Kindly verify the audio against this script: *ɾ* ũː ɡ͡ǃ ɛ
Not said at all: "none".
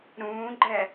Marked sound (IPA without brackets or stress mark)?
ɾ